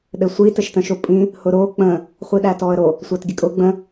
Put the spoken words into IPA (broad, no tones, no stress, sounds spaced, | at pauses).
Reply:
ɗ ɘ sʷ i t ɘ ʃ t ə̃ ʃ o pʼ ĩ | h ʊ ɾ o k͡p ə̃ | χʷ i ɗ æ t ɔ ə̯ ɾ o | sʷ æ t ɡʲ ə kʼ ʊ ɡ͡b ə̃